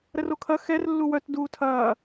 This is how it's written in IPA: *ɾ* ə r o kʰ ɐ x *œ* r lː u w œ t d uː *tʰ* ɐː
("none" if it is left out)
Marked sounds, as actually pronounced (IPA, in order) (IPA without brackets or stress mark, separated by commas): ɾ, ɛ, tʰ